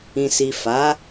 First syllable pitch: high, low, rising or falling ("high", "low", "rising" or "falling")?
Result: low